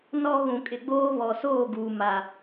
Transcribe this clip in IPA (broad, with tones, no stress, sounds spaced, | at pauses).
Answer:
n ɔ˦ ɣ ũ˨ kʼ ɪ˨ ɡ͡b oː˦ β ɔ˨ s oː˦˨ ɡ uː˨ m a˨